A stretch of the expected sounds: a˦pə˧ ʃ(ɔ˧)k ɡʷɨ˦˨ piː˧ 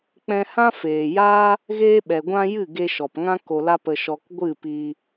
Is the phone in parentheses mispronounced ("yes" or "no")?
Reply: no